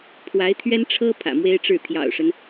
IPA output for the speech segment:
pʰwa˧˥ɪ̯t̪ʰɥɛ˥nʈ͡ʂʰɤ˥ pʰä̰˨˩mwe˥ɪ̯ʈ͡ʂɻ̩˥˩ t̪ʰjɑ̰˨˩ʊ̯ʂə˦n

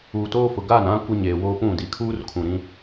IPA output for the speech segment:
uː˨toː˦fʊ˨ ɡa˦˨nã˦ kʷɪ˦ɲeː˨woː˦pũ˦˨ di˨kʰuː˦r kʰũ˨ ɾĩ˦

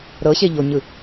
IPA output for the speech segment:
ɾɤɕeʎoɲɯ

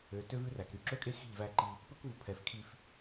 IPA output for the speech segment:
ø˨tø˦ vʉ˦ræ˨k ɾy˨ǁɵ˦kʼe˦ xi̤˦˨ʎvæ˦ǃi˦ | pɵ˦kvu˨pʰɛ˨f kʰi˦f

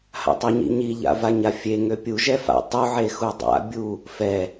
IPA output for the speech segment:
ha̰tˤeɲḭɲi ʎa̰vaɲafʲe ŋøpʲu ʒɛfa̰ tˤu ʕexudˤa̰ bʲu | fɛ

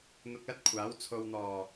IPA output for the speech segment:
n̪ʊ˧k̚lɐ˥t̚kʷʰaː˨˥w t͡sʰo˨wn̪ɔː˨˩

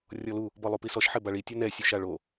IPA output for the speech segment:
rʲɔlu | bɔlˠupisɔʃ ħɪbaɭi tʲonɛ sʲuʃaɭo

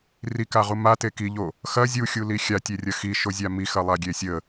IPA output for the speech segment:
rikaʁu mate kiʎo | xɐ zʲuxʲuli xʲatʲerʲɐ xiʃozʲa mixɐlˠaɡʲe sʲə

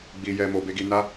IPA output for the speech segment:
ɡ͡bi˦jɛ˦mo˦ be˦ɡi˦ na˦

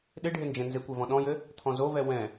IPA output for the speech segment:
ɗɪ ɖʱɪnd͡ʒɛ̃nzɪkʷɛ vɔ̃ɗɔ̃jɘ | t̪ʰɔ̃zovɛ wɛ̃

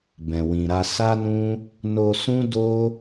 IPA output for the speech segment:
bɛ̃˨wĩ˨ɾa˧ sa˦nũ˦ | no˧sũ˦ do˦

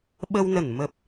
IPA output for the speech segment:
ɓə˧wnə˧˩n mə˨˩p̚

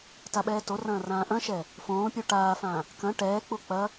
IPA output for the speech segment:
taɓɛːtorɐ̃ː rãːʔɐ̃ʃɛ | fõːpʲu ʈaːfãː | kɐ̃ ʈɛːk͡pu k͡pɐ

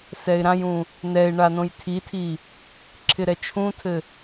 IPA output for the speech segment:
sɛɪ̯ɾãjũ | nɛɪ̯ ɳanõjtʰitʰi | ǁʰɪɾɛt͡ʃʰũtʰɘ

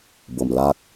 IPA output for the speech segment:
bo˨˩mla˦k̚

